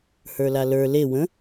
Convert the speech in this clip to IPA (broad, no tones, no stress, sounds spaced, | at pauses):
h ə˞ l a l ə˞ l e w ə̃